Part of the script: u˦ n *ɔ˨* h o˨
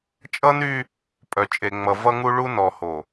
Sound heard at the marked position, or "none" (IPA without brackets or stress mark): ɔ˨